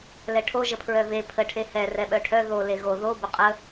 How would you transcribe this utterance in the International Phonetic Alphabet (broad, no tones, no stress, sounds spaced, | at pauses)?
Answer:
l ɛ ʈʰ o ʒ ə pʰ ɹ œ v e pʰ ə ʈʰ e h ɛ r ɛ ɓ œ ʈʰ œ ð o l e ɣ o ð o b ə qʼ ə